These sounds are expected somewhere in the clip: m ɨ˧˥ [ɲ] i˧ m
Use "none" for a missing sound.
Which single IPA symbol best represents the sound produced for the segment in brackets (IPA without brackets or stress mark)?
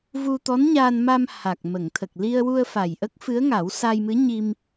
ɲ